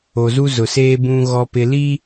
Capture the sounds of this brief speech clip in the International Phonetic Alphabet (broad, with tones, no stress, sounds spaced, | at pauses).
o˨ z u˦ z ʊ˨ s eː˦ b ũ˨ ɣ ɔ˨ p ɪ˨ l i˦